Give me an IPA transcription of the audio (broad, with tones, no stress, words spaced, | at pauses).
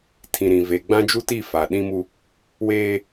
tʰĩ˨ɾĩ˨ ve˨ɡ͡bã˦d͡ʒu˦ti˦˨ fa˨ɗĩ˦mu˦ | weː˦